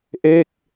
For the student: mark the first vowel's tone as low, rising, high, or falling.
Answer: falling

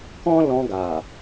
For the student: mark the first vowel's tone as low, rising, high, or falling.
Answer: high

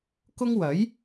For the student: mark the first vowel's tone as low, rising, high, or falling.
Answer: high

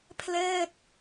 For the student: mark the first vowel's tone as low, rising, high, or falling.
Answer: falling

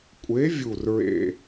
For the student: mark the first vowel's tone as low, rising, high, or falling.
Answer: rising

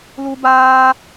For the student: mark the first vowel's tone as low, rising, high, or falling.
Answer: high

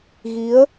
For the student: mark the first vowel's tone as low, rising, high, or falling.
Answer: rising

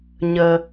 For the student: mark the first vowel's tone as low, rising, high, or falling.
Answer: low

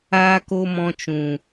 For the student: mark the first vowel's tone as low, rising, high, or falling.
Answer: high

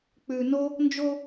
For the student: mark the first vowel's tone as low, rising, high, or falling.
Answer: low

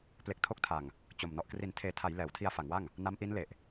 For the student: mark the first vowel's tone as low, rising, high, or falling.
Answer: low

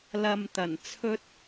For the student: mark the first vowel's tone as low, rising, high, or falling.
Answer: low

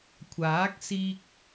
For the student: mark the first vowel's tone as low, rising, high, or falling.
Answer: rising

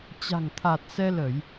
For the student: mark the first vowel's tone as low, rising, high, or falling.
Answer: low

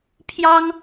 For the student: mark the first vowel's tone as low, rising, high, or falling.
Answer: high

